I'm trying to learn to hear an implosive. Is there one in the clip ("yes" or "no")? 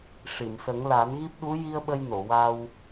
yes